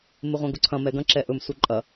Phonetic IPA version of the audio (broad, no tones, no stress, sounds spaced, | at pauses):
m ɪ ʁʷ ɐ̃ ɡ ʊ ǀʰ ɐ̃ m ɛ ɡ ɐ̃ ǁ ɛ ʔ ɵ m s u ǃʼ ɐ